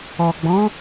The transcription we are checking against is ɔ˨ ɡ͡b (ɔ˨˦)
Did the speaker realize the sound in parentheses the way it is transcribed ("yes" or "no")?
no